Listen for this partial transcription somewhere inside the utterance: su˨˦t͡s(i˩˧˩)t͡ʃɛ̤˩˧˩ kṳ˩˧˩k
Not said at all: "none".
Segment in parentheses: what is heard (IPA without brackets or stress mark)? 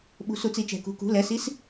i˩˧˩